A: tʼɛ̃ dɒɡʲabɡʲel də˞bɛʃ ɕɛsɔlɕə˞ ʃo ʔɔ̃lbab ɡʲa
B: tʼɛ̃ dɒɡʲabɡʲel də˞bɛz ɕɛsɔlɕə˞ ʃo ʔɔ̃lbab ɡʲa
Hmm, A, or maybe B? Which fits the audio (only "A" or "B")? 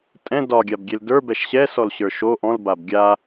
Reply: A